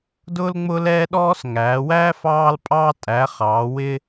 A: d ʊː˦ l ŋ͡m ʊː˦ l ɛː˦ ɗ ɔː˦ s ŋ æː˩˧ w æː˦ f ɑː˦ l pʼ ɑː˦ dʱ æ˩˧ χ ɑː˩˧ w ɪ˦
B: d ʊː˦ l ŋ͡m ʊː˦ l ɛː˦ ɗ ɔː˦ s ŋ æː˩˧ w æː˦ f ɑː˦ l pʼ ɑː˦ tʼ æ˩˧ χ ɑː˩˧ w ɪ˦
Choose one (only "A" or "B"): B